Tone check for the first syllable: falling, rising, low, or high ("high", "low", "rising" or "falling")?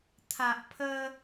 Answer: low